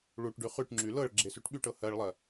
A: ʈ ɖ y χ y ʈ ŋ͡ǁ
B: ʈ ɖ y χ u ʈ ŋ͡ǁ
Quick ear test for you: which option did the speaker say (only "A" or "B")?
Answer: A